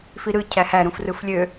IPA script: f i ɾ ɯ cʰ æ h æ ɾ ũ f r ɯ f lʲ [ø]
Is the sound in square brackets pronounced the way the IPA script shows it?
yes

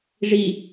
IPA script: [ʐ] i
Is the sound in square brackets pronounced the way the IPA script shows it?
yes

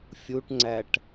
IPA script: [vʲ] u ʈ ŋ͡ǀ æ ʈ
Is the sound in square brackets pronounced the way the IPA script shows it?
no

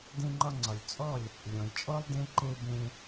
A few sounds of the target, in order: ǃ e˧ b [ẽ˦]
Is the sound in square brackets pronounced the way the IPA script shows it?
no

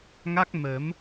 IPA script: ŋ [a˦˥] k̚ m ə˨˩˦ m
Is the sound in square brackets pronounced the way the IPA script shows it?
yes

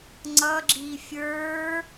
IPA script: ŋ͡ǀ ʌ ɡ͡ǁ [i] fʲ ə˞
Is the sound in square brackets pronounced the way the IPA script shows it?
yes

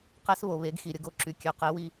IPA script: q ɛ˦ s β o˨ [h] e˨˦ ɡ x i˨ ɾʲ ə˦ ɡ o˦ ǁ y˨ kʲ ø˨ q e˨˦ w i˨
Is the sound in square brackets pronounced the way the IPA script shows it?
no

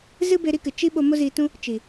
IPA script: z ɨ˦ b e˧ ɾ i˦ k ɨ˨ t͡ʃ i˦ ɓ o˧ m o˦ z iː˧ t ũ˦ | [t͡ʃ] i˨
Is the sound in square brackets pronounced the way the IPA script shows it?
yes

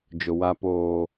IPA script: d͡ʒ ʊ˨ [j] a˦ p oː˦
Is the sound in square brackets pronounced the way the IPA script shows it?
no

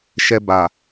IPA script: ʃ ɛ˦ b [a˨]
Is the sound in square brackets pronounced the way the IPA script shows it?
yes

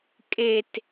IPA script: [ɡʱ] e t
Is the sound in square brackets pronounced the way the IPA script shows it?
no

